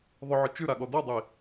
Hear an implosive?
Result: yes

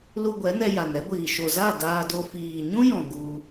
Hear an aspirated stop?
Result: no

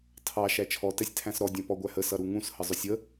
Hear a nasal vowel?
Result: yes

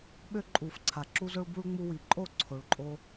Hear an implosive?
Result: yes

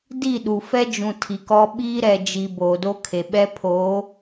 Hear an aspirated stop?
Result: yes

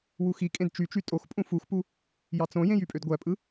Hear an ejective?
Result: yes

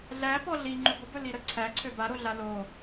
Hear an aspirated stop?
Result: yes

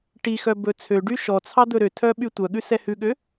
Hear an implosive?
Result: yes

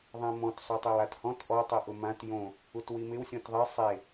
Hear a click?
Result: no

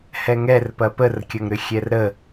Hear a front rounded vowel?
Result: yes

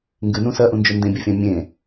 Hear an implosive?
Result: no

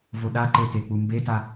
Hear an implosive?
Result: yes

